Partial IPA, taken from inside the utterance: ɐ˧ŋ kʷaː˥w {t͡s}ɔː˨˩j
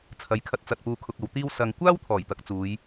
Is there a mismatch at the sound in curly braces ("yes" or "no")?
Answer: yes